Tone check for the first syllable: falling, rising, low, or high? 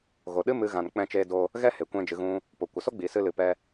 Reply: low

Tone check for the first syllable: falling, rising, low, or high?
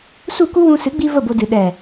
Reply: falling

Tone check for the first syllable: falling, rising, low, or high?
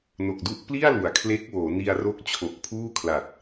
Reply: low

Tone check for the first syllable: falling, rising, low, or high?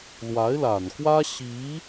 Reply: rising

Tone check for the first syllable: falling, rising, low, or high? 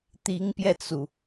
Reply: rising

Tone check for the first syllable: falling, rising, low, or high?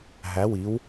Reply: rising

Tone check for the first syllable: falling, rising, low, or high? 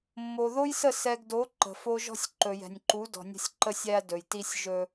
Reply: low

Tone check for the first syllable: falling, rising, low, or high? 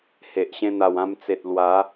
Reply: low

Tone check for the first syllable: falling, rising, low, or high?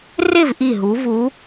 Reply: falling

